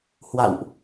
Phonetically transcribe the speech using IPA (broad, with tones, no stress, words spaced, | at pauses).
hwa̰˧˨wʔ